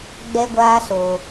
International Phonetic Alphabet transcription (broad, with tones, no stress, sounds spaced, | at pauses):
ɡ͡b ɛ˦ ɡʷ aː˦ s o˨